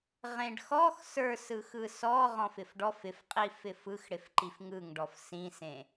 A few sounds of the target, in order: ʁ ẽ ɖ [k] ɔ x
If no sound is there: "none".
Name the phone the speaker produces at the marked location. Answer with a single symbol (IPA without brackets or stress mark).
x